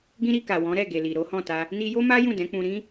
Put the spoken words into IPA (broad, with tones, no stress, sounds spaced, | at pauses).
ɡ ĩ˦ ɾ i˧ k a˨ w ɔ̃˨˦ ɾ ɛ˦˨ ɡ e˨ l i˨ ɾ o˨˦ h ɔ̃˦˨ t a˧ | n i˧ j o˦ m a˦ j ũ˦˨ d ɛ̃˨˦ k͡p ũ˧ ɾ ĩ˦